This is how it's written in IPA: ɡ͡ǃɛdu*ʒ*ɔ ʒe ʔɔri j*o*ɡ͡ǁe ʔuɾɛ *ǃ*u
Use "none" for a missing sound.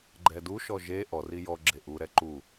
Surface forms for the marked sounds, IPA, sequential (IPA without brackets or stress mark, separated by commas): ʃ, ɔ, ǃ